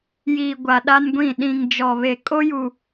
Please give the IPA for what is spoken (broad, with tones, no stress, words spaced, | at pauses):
jiː˨ɡʷa˨ ɗa˦nɡʷĩ˦˨ ɗĩ˨ŋ d͡ʒɔ˨βe˨ kʼo˦ju˨